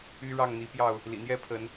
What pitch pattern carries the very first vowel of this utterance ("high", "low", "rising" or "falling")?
high